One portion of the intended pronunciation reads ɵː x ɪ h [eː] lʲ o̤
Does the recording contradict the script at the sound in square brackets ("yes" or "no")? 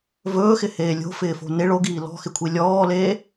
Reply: no